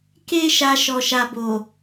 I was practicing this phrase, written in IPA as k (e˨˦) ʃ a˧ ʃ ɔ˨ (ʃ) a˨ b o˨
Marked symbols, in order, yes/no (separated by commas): no, yes